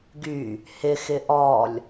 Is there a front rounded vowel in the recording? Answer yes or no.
yes